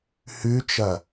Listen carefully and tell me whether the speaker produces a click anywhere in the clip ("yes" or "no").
no